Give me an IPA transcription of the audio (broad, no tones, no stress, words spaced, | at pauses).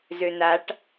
zønaʈ